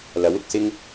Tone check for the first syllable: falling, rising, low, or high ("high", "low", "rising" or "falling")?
rising